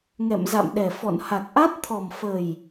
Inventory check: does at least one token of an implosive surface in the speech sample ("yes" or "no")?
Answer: yes